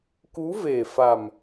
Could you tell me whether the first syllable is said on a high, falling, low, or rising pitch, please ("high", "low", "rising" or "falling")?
rising